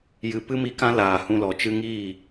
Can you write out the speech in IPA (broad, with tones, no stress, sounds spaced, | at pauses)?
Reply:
j ɨ˨ p ɨ˦ m i˧ k ã˦ l aː˨ h ũ˧ l ɔ˨ t͡ʃ ɨ˧ ŋ iː˦˨